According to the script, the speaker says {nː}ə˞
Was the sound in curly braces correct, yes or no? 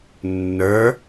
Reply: yes